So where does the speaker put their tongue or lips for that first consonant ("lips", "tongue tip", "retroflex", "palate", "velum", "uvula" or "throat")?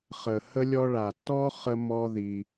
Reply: uvula